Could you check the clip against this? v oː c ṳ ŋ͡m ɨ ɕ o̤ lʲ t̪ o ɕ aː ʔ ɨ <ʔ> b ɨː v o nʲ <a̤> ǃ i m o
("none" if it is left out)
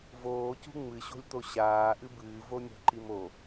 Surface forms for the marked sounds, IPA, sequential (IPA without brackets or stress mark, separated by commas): none, a̤